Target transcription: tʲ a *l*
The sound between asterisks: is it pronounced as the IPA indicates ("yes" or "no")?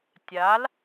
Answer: yes